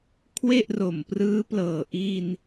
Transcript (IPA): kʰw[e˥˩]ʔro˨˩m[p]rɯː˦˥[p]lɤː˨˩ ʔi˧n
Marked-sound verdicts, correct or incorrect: correct, correct, correct

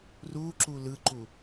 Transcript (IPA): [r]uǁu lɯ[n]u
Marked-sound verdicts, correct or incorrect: correct, incorrect

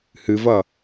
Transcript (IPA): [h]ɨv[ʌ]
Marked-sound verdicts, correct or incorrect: correct, correct

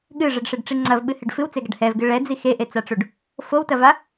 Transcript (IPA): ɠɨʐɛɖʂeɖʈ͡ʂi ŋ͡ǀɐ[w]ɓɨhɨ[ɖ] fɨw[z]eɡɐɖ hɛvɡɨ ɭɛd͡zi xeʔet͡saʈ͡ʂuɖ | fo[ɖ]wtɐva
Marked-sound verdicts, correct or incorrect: incorrect, correct, incorrect, incorrect

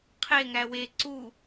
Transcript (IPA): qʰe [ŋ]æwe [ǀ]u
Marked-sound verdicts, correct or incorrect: correct, correct

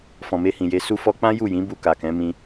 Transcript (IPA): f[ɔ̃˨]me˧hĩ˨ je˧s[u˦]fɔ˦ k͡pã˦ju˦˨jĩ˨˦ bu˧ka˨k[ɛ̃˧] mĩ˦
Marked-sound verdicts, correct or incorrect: correct, correct, incorrect

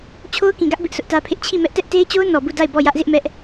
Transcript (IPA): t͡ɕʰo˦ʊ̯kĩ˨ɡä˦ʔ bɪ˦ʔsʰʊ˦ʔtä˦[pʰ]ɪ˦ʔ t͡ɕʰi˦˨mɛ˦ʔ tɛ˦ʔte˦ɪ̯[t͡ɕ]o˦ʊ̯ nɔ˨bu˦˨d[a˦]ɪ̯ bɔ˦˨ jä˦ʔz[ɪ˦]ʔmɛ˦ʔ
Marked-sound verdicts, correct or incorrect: correct, correct, incorrect, correct

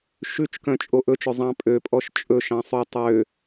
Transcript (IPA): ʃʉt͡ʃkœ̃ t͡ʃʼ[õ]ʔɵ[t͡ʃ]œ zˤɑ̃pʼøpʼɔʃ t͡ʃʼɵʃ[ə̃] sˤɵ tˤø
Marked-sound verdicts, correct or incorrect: incorrect, correct, incorrect

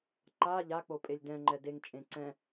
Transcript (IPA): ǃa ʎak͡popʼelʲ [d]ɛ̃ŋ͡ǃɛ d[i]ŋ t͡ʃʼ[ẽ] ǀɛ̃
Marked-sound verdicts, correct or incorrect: correct, incorrect, correct

